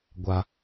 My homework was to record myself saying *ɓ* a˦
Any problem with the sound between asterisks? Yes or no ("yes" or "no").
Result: yes